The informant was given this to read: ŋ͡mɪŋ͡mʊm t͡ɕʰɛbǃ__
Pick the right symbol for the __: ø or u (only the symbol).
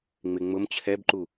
u